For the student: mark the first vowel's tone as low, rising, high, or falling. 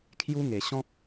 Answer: high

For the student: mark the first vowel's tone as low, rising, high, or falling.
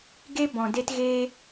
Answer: high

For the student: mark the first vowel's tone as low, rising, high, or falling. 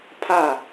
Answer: falling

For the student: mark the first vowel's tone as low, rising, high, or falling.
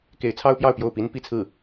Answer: rising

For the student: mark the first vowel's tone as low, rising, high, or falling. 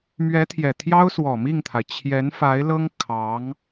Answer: rising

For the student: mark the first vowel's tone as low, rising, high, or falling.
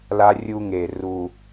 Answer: high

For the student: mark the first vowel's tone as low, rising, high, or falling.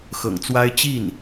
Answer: low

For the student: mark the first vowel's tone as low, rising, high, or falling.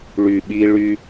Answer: low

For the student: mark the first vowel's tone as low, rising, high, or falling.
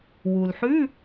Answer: low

